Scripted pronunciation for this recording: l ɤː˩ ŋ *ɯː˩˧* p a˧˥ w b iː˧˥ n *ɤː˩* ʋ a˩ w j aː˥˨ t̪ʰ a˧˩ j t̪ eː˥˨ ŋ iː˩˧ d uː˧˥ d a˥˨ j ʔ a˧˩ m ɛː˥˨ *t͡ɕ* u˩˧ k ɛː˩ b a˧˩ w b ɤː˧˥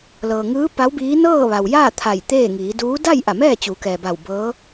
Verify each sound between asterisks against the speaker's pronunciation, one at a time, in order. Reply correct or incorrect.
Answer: incorrect: ɯː˧˥, incorrect: ɤː˥˨, correct

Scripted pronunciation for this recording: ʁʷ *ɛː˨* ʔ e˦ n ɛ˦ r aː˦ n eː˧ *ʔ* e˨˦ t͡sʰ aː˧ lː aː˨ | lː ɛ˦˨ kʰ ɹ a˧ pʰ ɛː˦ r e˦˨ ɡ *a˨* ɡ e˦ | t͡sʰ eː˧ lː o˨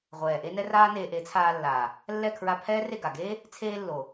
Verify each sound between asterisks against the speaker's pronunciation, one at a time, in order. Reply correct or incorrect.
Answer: correct, correct, correct

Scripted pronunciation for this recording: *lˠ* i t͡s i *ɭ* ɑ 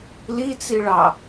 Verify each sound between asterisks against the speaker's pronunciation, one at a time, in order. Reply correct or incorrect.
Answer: incorrect: l, correct

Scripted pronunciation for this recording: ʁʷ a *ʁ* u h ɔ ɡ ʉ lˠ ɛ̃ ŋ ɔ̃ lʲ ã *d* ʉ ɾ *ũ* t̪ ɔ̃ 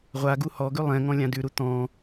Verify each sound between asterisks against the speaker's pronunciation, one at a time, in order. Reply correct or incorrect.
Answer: incorrect: ɡ, correct, incorrect: u

